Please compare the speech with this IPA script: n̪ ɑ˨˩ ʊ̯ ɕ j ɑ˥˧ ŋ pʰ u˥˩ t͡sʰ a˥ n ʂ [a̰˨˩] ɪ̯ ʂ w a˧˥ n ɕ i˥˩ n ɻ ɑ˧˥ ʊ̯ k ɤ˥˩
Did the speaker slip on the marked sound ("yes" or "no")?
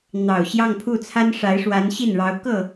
yes